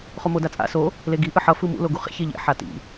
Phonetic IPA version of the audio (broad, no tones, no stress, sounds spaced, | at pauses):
χ o m o d a t͡sʼ a̰ s o | l e ɡ i ʔ ɯ ħ ʌ f ɯ m ṵ l o ɡ u χ ḛ ç e ʎ ḛ ħ a t ḭ